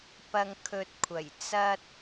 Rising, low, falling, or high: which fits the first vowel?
low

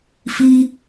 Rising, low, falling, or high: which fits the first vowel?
high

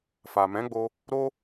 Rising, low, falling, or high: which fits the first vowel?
low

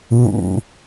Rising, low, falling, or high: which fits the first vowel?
low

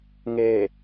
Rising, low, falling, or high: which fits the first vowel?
low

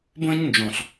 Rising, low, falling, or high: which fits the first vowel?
high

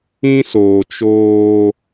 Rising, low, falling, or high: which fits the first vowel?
high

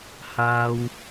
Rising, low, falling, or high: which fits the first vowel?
high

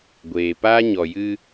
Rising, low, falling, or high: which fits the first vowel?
low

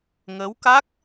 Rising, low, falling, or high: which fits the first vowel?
rising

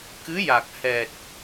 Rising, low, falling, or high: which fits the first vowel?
rising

